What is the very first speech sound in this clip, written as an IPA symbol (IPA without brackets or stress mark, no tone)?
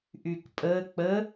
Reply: ʔ